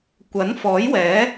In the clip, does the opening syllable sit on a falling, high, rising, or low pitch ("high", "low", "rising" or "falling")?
rising